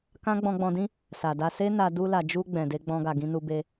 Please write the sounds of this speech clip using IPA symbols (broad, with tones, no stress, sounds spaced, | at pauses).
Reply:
k ã˦ ɡ͡b ɔ̃˧ ɡ͡b ɔ̃˧ d ĩ˦ | s a˨ d a˧ s e˦ n a˧ d u˧ l a˨ d͡ʒ u˧ ɡ͡b ɛ̃˨ d e˧ ɡ͡b ɔ̃˧ ɡ a˨ ɡ ĩ˧ n u˧ b e˧